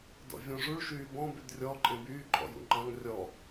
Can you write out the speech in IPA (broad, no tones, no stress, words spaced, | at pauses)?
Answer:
dɔ̰vʲɔ̃ʐuɭ ʃyːbɔ̃ bydrʲɔ ǃʼẽbyː ǃʼɔ̰jṵŋ͡ǃɑ̃ŋ rʲɔ